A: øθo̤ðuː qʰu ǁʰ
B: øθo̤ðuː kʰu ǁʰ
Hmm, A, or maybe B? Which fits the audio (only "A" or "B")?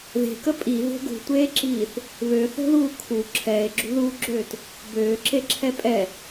B